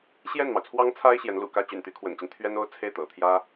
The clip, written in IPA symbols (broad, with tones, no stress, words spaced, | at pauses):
ɕjɛ˥˩nmɑ˩ʊ̯t͡sʰwɑ˥ŋt͡sʰa˥ɪ̯ ɕjɛ˧˥nlṵ˨˩kä˥˩ t͡ɕy̰˨˩nt̪y˧˥kʰwə̰˨˩nt͡ɕi˦n t̪ʰɥɛ˥no˥ʊ̯ t͡sʰe˥˩ɪ̯t̪ɤ̰˨˩t̪ʰjä˥